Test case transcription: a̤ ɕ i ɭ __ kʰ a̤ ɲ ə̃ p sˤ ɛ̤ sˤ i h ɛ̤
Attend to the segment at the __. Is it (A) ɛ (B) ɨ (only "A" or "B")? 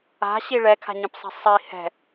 A